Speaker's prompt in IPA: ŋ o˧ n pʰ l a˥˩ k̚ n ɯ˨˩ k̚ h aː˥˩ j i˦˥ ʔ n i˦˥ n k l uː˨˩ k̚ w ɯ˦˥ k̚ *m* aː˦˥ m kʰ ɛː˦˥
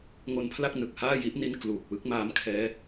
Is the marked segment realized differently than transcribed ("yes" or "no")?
no